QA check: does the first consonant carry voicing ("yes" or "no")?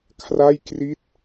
no